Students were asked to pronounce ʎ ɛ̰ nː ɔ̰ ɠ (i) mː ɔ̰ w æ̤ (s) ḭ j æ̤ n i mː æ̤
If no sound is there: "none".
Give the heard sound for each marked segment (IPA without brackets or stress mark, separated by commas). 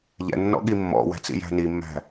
i, t͡s